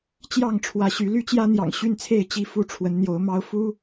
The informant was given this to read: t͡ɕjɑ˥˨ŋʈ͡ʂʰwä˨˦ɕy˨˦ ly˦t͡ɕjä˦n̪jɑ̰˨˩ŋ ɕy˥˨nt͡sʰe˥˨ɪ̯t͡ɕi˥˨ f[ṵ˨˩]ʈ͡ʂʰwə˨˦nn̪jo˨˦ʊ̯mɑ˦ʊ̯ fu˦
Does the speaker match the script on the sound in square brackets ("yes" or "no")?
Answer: no